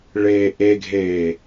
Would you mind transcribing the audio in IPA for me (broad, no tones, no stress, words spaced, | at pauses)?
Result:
ɭeːʔeɡʱeː